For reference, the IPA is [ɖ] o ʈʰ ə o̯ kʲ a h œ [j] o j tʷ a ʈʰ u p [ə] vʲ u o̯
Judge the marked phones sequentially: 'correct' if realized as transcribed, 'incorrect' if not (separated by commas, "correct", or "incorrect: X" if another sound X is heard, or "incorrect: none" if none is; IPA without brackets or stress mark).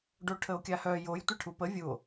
correct, correct, correct